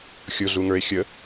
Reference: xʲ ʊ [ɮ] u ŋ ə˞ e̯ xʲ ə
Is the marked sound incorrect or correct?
correct